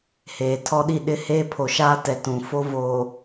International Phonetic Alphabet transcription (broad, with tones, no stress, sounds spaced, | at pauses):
h eː˨ tʰ ɔ˦ ɗ i˦˨ ɗ ɪ˦ h eː˦ pʰ o˨ ʃ aː˦ t ɛ˨ t ũ˨ f o˦ v oː˨